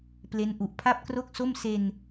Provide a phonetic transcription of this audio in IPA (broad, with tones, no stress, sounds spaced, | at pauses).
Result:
p l e˦˥ n ʔ u˨˩ ʔ pʰ a˥˩ p̚ k r o˥˩ k̚ s o˥˩ m s e˧ n